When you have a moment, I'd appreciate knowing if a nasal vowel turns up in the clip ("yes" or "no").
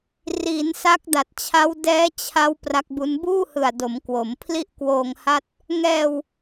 no